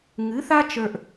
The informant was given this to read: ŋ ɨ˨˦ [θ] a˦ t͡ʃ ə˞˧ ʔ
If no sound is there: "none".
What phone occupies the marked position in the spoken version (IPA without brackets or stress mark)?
θ